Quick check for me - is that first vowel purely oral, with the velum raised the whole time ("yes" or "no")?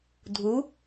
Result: yes